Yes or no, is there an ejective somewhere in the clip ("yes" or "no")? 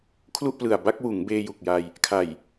no